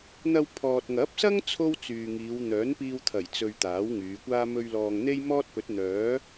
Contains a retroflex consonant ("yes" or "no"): no